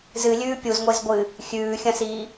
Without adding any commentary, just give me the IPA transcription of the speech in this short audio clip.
zɨlʲʉː pʲuzŋʷez ɡʷɨ | xʲʉːxʲɐ̃siː

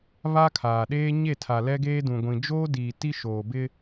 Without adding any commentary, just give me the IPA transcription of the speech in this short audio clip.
βa˦kʰaː˨ɗeː˦ ɲe˦˨tʰa˨ lɛ˦ɡeː˦dũ˨ɡʷĩ˨ d͡ʒoː˦diː˨ ti˦ʃoː˨bɪ˦

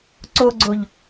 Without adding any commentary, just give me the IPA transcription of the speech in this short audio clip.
ǀoɡ͡ǀoʎ

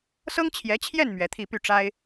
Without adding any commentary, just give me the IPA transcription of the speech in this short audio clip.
sɤ˥ŋt͡ɕʰjɛ˧˥t͡ɕʰjɛ˥˩n mɥɛ˧˥t̪ʰi˥˧ py˥˩ʈ͡ʂa˥ɪ̯

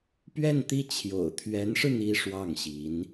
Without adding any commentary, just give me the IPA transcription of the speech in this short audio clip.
pɥɛ˥˧nt̪i˥˩ t͡ɕʰjo̰˨˩ʊ̯t̪ʰɥɛ˧˥nʂɻ̩˧ n̪i˥ʂwɑ˥˩ŋɕi˧˥n

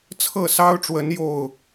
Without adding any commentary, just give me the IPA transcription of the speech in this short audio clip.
t͡sʰɤ˥˨sɑ˦ʊ̯ʈ͡ʂwə˨˦n jo˥˨ʊ̯

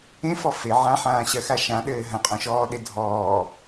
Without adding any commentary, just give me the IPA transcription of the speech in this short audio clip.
ẽfɔ fe ʕãħãːɕɜxa ʃãɗɘː ɦɐ̃qʼɔ̃ʃɔːɗe dʱɔː

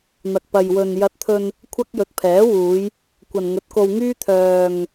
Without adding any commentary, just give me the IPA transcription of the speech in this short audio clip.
n̪ɐ˨k̚pɐ˨jwɵ˨n jɐ˧t̚t̪ʰɵ˧n | kʷʰɐ˥k̚jɵ˨˥t̚pʰɛː˨˥wuː˨˧j | kʷɐ˨nŋɵ˨˥t̚ko˧wŋyː˥ t̪ʰœː˨ŋ

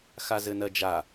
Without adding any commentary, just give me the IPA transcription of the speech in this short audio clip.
xazɘnɜd͡ʒa

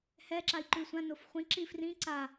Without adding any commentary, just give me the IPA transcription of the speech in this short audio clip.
hɛǁai̯ ǃʉsʷãnof χʷĩǁi frĩ ǀa

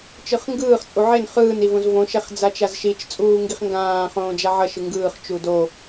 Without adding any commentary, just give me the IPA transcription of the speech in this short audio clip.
t͡ʃɯχŋɡɯːχ t͡sʼuʕen χɯːn ivõzvõ ʃɛχd͡zat͡ʃazʃit͡ʃ t͡sʼuːŋɡiχŋɡãː χõːd͡ʒaʕʌ ʃɯŋɡɯːχ t͡ʃudo

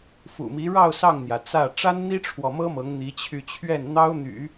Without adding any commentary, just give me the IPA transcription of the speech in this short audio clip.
fṵ˨˩mi˧˥ ɻɑ˥˧ʊ̯ sɑ˥˩ŋn̪jä˩t͡sä˥˩ ʈ͡ʂa˥nn̪i˥ʈ͡ʂʰwɔ˨mɤ˥ mɤ˧˥ŋn̪i˧˥ t͡ɕʰy˥˧ t͡ɕʰɥɛ˥˩nn̪ɑ˥ʊ̯n̪y̰˨˩˦

